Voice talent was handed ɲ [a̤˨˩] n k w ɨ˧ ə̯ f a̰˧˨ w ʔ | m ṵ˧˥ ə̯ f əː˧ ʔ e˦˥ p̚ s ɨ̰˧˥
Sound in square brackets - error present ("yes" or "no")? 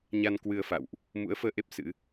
yes